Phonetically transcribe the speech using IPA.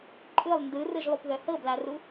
ǃʼ ɯ lˠ n d ɯ r ɯ ʒ lˠ u p ð œ h ɤ b l a r u

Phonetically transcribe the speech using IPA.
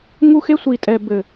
ŋ u˦ x e˦ sʷ i˨ tʼ ɛː˨ b ɘ˨

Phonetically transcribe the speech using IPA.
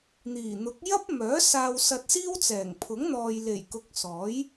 n̪ iː˨˩ n̪ ʊ˨˥ k̚ j ɐ˥ p̚ m œː˨˥ s aː˧ w s ɐ˧ t̚ s iː˥ w t͡s ɛː˨˩ ŋ pʰ ʊ˨˥ ŋ n̪ ɔː˨ j l e˨˩ j k ʊ˨ k̚ s ɔː˨˥ j

